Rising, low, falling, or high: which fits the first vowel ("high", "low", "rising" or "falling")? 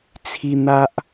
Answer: high